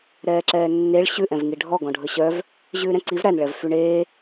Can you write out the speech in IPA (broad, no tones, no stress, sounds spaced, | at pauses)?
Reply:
ɾ ɛː ǁ ɛː nː e ɭ ɕ ʉ ʔ ɛ̃ v ŋ i ɖʱ ɔ ɡ ɔ̃ ɖʱ ɵ ɕ œ v | ʑ ʉː ɾ ɛ̃ ǀ i v ɾ æ n ɭ ɛ v f y ɳ eː